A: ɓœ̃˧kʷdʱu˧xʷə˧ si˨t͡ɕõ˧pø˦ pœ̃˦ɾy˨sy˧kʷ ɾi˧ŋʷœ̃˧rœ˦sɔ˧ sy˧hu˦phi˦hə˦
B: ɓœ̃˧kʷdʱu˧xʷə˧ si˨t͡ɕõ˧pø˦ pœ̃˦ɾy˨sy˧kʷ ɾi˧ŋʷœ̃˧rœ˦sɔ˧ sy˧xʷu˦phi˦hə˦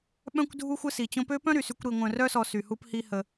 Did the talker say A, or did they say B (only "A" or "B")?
A